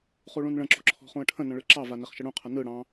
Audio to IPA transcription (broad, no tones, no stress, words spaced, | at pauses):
χuɭũnɭə̃ǁo̤ ǁʰɔ̤χũə̯ʈʰə̃nə̃ ɭɯǁɑva neχʃəɽũqʰə nɯ ɽɑ̃